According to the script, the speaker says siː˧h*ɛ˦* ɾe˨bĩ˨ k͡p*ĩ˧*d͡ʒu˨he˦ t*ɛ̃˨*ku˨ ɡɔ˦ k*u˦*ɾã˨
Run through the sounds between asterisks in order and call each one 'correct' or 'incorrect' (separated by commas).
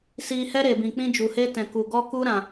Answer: correct, incorrect, correct, correct